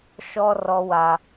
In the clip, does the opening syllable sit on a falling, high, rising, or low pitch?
high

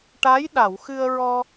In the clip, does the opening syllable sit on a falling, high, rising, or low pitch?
rising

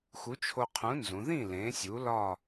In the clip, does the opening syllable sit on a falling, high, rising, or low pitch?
rising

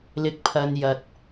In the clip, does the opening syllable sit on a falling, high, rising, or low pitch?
low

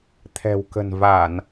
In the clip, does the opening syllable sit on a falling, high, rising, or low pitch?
low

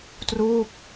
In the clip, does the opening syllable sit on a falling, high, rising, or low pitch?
falling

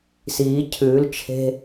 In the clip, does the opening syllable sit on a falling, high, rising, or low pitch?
rising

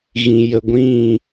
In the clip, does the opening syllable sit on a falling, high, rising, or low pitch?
low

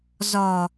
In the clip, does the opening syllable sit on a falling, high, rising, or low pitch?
low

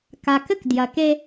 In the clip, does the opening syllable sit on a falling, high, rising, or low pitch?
low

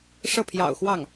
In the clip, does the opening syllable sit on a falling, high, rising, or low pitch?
falling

